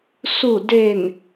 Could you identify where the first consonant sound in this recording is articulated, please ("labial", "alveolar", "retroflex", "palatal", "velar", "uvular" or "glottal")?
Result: alveolar